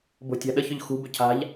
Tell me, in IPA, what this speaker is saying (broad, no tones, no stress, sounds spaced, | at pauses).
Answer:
b o̤ tʲ a̤ ɗ ə ç ʏ ʎ x ṳ b ʏ cʰ a̤ ʎ